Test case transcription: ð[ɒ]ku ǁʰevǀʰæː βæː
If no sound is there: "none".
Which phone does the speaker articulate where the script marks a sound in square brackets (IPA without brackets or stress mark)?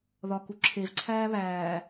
ɒ